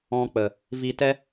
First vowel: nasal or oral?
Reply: nasal